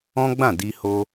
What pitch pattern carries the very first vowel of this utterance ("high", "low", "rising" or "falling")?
high